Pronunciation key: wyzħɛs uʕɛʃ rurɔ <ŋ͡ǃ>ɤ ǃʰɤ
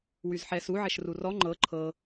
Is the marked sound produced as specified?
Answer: yes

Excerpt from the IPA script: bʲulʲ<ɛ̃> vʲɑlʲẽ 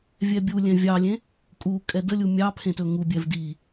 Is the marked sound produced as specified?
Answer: yes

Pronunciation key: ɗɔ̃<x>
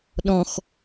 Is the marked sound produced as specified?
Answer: yes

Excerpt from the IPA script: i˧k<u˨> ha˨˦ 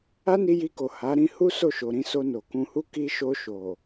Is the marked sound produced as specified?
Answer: no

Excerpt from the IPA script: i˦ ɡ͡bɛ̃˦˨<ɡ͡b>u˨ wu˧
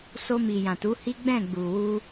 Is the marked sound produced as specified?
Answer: yes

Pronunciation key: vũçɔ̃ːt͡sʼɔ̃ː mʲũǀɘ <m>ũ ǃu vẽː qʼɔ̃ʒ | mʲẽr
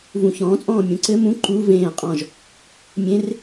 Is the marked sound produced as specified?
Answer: yes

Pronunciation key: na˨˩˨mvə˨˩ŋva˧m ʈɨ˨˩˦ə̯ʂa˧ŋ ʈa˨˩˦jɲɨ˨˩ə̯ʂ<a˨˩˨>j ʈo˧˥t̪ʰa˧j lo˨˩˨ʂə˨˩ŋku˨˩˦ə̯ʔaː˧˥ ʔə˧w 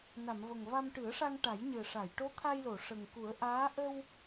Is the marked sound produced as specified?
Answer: yes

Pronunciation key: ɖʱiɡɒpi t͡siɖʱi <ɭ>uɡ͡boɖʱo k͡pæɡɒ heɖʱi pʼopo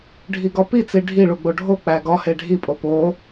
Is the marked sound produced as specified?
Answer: yes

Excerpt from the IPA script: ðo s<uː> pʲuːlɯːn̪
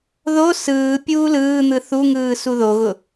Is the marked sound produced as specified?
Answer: no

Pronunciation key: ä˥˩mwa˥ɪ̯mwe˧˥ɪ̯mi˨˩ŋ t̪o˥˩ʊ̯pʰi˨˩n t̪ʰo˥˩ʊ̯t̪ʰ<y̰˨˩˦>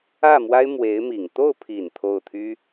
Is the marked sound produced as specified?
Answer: no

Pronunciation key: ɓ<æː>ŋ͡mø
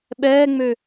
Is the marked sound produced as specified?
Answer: no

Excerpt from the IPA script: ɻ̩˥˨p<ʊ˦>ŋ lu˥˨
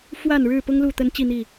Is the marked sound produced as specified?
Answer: yes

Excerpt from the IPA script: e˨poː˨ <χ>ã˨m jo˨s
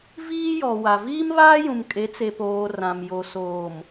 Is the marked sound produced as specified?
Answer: no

